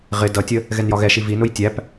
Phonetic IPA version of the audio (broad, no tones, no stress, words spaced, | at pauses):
ʁɪ dʌtʲə | ɣɛnjɒɣɛʃi vinʊj tʲæp